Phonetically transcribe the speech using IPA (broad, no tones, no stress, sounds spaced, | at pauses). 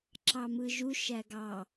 ǁ ɑ m ɯ ʒ u ʃ æ ɡ ɑ